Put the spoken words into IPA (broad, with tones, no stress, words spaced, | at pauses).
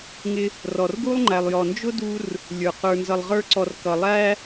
ŋɪ˧ | rɔ˨rɡu˦lˠŋ͡ǃæ˨lˠjɔ˨ nd͡ʒʊ˦ du˦r | lʲə˞˨ qə˞˨nzʌ˨lˠʁə˞˧ǀɔ˨r kʌ˨lˠæ˦